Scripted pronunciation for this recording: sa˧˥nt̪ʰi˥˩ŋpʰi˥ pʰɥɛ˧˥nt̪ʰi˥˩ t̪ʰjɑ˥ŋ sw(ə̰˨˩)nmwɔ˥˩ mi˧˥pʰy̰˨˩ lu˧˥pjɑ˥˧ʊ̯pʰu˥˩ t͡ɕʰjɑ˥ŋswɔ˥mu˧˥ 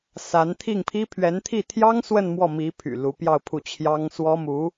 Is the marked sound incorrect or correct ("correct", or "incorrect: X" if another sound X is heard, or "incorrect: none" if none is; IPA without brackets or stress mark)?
incorrect: ə˥˧